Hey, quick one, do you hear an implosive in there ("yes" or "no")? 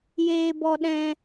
yes